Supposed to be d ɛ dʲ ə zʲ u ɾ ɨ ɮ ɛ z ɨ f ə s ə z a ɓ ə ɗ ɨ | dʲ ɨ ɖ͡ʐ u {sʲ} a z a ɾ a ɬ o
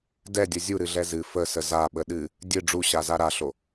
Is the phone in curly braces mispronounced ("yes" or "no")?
yes